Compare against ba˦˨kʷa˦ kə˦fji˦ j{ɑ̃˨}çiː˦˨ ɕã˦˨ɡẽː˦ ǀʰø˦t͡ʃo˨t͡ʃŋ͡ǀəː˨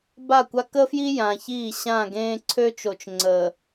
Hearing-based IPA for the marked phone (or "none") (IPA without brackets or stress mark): ã˨